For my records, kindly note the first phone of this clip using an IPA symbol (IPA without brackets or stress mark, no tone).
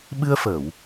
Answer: ɓ